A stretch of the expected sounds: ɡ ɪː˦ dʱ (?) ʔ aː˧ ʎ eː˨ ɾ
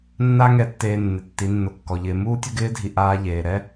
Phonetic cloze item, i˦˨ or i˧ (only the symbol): i˧